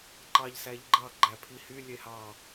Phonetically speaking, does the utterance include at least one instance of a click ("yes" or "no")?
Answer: yes